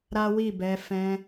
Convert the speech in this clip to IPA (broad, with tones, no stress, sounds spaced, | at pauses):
ɾ a˦ w i˦˨ b ɛ˧ f ɛ̃˧